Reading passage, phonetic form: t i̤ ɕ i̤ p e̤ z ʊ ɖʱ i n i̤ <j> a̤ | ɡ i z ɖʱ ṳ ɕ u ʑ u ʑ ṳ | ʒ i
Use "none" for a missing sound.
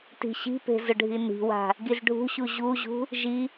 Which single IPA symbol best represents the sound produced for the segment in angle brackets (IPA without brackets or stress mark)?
w